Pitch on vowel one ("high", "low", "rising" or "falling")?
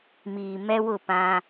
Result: low